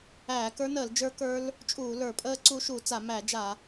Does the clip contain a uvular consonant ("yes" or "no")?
no